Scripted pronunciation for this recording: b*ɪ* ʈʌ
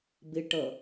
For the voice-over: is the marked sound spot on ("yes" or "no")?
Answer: yes